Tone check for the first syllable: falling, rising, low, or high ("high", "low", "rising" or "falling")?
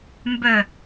falling